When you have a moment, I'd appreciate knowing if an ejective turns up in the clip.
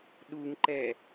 no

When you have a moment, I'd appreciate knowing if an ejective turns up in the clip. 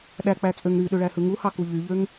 yes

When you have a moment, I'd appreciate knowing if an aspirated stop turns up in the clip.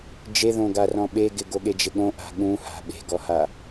no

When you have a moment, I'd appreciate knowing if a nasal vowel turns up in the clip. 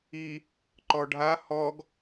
no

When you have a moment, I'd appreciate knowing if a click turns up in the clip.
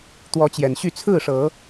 no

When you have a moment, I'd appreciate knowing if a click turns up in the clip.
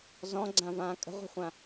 yes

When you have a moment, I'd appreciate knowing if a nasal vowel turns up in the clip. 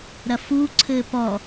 no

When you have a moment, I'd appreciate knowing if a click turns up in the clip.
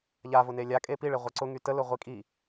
yes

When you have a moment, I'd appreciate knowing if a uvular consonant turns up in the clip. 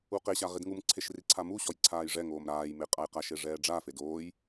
yes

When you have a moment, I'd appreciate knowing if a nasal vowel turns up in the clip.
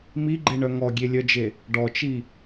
no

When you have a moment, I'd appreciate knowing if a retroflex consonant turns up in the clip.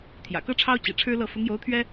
yes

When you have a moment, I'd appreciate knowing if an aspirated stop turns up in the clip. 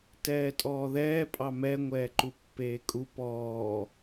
no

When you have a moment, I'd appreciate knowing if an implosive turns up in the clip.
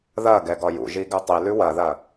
no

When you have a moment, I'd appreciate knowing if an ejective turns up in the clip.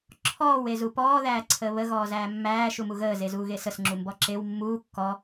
no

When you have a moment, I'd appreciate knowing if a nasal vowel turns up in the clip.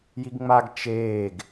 no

